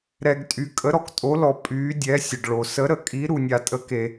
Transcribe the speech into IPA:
ɾ ɛ˧ ɡ tʼ y˧ kʼ ə˧˥ ɾ ɔ˧ k tʼ o˧˥ l ɔ˧ pʼ yː˧˥ dʲ ɛ˧˥ sʲ ə˧ ɖ ɭ o˧ s ə˧˥ ɾ ə˧˥ kʼ i˧˥ ɾ u˧ nʲ a˧ tʼ ə˧˥ k e˧

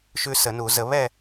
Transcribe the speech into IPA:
ʃ ʉ˦ s ə˨˩˦ n u˨˩˦ z ə˨˩˦ β ɛ˥˨

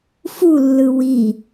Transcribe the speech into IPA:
f u lː ɯ w i

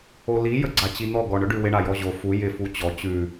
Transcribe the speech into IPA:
o l i j ə ɡ͡ǀ a t͡ɕ i n̪ ɔ ɡ ɔ ɳ ɵ ɖ ʉ w ɪ ɳ a j ɔ ʑ o f u j ɪ f u t͡ɕ ɔ t͡ɕ ʉ

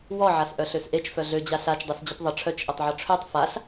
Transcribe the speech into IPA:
w ɔ ʕ a s ʔ œ ɬ ø s ʔ e t͡ʃ f œ ɮ ø d͡ʑ a ɬ a t͡ʃ dˤ œ s d͡ʑ ə p ðˤ ə ʈ͡ʂʰ œ t͡ʃ ʔ e tˤ ʕ ɔ ʈ͡ʂʰ ø tˤ f a ɬ

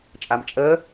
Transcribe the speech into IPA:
t͡ʃʼ a m t͡ʃʼ əː

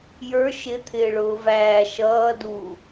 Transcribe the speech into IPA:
j ə˞ ʃ ɪ t̪ʰ ɪː ɭ ʊː v æː ʃ ʌː d u

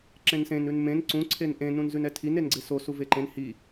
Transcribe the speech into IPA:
ǁ ẽ n s ẽ n ʉ n m ẽ n ǀ ũ ǀʰ e n ʔ ẽ n ũ n z ʉ n ɛ tʰ i n e n ɡ͡ǀ e s o s u v e ǃ ẽ n h i

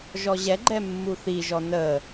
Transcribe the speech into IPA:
ʒ ɔ ʑ ɛ ɡ͡ǃ ɛ mː u θ i ʒ ɔ n ə

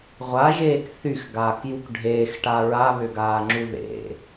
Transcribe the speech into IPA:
ʁʷ a ʒ eː k θ y x ɡ aː k j u k ɖʱ eː x ʈ a ɹ a β ʏ ɡ aː ŋ͡ǁ u ð ḛ

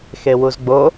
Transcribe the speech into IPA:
x e w u z ɡ͡b o

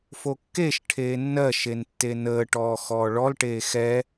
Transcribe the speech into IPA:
f o kː e ʃ ʈʰ eː nː ɜ ʃ e n tː e n əː ʈ ɔː x ɔː ɭ ɔ l ʈ eː x ɛ

